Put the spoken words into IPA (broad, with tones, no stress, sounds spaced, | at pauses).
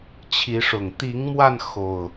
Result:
t͡ɕʰ i˨˦ ʂ ʊ˨˩ ŋ t̪ i˨˦ ŋ m w a˧ n x o˨˩ ʊ̯